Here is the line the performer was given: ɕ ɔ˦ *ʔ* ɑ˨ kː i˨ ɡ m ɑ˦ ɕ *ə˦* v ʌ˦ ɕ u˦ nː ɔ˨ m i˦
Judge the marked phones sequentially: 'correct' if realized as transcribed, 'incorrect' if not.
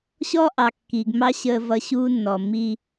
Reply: correct, correct

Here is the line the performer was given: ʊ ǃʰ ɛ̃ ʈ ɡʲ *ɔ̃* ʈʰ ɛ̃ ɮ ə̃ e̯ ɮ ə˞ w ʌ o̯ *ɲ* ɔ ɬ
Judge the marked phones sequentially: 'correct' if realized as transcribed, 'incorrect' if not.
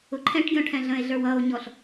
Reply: correct, correct

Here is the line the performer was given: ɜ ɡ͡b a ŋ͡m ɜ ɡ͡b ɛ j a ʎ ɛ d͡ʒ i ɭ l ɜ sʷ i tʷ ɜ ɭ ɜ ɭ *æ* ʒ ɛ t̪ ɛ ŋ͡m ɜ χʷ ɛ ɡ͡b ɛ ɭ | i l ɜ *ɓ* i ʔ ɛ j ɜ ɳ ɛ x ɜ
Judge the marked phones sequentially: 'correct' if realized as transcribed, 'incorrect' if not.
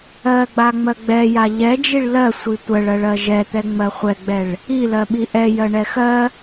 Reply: incorrect: ɜ, correct

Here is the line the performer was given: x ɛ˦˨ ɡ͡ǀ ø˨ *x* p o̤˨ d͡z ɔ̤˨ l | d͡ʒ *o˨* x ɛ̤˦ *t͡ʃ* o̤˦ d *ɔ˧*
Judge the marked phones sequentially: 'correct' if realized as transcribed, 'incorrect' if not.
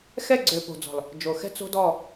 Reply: incorrect: none, correct, incorrect: t͡s, incorrect: ɔ˦˨

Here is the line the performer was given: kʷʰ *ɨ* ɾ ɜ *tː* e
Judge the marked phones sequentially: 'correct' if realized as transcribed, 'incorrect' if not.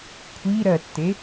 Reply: incorrect: i, correct

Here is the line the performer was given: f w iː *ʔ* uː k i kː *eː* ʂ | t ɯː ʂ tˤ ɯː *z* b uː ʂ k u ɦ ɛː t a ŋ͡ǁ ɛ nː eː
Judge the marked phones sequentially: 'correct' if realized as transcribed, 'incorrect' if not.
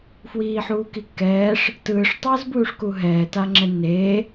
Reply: incorrect: ħ, incorrect: ɛː, correct

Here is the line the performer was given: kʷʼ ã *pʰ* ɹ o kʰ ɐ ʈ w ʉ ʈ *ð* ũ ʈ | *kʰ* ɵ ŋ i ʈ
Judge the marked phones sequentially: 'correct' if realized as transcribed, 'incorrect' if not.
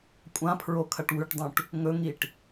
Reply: correct, incorrect: dˤ, incorrect: ŋ

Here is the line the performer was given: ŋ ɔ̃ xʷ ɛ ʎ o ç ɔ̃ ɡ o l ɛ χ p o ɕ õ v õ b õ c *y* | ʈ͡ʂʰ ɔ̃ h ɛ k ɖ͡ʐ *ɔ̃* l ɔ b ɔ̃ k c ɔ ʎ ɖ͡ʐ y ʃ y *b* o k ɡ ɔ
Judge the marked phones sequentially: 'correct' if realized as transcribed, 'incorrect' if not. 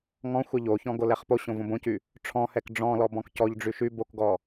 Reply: correct, correct, correct

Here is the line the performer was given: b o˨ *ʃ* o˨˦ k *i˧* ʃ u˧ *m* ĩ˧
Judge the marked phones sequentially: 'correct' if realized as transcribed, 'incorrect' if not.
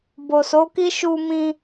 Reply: incorrect: s, incorrect: i˦, correct

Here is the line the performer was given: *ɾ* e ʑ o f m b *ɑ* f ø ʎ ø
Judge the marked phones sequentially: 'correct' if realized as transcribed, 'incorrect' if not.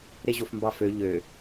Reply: correct, correct

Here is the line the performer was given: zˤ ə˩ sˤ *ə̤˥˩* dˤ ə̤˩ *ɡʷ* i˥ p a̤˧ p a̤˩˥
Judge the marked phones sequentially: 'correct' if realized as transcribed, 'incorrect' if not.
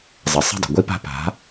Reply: correct, correct

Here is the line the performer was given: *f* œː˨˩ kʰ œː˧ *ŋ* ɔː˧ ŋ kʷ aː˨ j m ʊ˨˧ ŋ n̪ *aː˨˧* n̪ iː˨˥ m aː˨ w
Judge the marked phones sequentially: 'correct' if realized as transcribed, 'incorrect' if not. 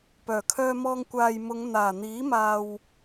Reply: incorrect: p, incorrect: m, incorrect: aː˨˩

